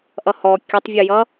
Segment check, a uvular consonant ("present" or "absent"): absent